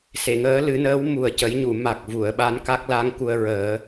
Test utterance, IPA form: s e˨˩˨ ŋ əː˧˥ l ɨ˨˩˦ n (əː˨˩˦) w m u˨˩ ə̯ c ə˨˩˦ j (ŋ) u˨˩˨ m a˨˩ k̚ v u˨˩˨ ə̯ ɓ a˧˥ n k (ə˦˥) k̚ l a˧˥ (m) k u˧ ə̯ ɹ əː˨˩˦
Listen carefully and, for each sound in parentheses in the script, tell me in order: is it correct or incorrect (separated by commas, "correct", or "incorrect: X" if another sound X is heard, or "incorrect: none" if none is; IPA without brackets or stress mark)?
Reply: incorrect: əː˧˥, incorrect: ɲ, incorrect: a˦˥, incorrect: ŋ